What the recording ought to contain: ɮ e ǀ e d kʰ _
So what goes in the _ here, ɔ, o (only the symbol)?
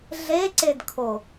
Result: o